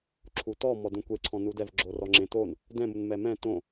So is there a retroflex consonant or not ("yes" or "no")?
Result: no